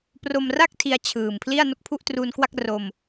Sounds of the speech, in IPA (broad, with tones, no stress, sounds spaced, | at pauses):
p r o˧ m r a˥˩ k̚ tʰ i˧ a̯ t͡ɕʰ ɯː˨˩ m pʰ l i˥˩ a̯ n o˥˩ k̚ pʰ u˥˩ ʔ t r uː˧ n k w a˥˩ k̚ r o˧ m